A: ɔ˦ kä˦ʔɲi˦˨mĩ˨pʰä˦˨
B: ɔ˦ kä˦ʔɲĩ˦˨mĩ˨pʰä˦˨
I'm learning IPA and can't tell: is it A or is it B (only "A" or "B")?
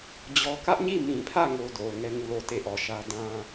A